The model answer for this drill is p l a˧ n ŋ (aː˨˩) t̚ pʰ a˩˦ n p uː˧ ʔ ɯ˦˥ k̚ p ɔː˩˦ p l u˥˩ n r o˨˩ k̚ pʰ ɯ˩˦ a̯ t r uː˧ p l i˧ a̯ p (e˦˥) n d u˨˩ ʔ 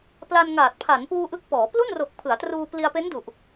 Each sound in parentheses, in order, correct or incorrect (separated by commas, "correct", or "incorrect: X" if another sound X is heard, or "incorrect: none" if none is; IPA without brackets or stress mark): correct, correct